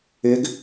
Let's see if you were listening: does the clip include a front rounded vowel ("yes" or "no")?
yes